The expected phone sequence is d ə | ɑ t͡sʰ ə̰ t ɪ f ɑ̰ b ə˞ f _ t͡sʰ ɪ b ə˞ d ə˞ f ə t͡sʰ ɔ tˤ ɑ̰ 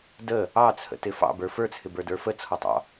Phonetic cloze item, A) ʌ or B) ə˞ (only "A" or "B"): B